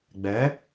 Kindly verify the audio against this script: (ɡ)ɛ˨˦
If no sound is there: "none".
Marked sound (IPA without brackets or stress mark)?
ɡ͡b